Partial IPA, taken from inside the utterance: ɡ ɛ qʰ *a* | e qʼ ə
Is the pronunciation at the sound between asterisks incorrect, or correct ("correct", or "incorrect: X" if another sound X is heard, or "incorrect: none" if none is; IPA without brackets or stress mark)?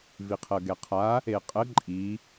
correct